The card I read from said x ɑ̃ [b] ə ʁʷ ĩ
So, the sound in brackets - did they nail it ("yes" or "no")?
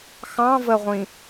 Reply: no